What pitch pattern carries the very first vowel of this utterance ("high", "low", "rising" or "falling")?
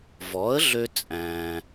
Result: rising